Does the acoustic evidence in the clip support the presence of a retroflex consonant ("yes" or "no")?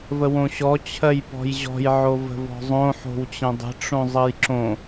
yes